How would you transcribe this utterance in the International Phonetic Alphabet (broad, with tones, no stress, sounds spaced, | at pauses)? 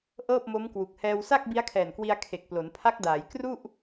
ʔ ɤː˥˩ p̚ m o˦˥ m k w u˨˩ k̚ h ɛː˧ w s a˥˩ k̚ b i˦˥ a̯ kʰ ɛː˨˩ n k w i˧ a̯ kʰ e˨˩ k̚ p l o˩˦ n pʰ a˦˥ k̚ d aː˩˦ j k r u˥˩ ʔ